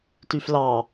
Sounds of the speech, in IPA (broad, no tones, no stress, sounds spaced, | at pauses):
t y f l ɑ